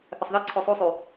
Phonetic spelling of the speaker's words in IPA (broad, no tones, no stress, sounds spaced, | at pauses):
θ ə sˤ ð ɘ ǀʰ o sˤ u sˤ y